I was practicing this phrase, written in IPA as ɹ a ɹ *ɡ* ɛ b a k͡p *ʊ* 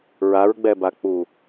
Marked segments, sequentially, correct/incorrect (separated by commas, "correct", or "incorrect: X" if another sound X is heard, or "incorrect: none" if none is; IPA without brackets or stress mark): incorrect: ɡ͡b, incorrect: u